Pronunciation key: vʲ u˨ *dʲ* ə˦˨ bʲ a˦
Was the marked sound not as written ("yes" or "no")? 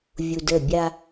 yes